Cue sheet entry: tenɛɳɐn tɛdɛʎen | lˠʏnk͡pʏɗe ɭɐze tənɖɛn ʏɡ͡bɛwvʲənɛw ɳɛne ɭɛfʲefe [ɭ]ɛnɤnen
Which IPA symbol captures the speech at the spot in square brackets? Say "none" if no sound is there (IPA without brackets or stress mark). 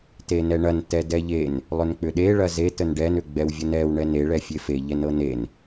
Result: ʎ